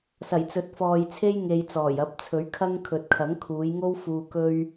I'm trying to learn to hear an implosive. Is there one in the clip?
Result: no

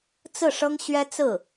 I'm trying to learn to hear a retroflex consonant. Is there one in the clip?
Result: yes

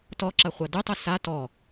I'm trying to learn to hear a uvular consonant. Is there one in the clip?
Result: yes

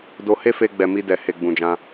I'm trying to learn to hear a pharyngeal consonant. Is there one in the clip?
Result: no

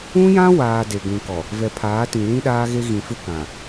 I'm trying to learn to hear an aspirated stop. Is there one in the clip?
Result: yes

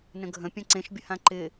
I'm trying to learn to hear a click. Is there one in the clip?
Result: yes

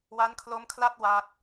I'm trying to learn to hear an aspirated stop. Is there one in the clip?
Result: yes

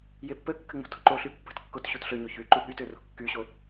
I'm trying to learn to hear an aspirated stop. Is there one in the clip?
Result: no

